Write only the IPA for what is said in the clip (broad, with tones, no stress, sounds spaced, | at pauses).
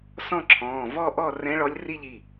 s ɔ̃˥˧ ǁʰ ɔ̃ː˩˧˩ v ɔ˥˧ ʔ ɔ˥˧ r ɛ̃˧˥ ɭ ɔ˧˥ lʲ r i˥˧ ʎ i˩˧˩